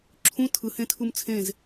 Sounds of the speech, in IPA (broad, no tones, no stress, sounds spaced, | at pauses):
ǁʰ ũ tʰ ɯ h ẽ tʰ u m t͡sʰ ẽ z